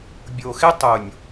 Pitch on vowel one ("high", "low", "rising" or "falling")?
low